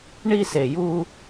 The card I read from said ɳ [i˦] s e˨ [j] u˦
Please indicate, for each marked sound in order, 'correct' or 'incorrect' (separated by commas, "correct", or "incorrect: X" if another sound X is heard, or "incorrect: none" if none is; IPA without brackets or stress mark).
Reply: correct, correct